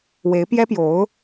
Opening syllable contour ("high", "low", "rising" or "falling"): rising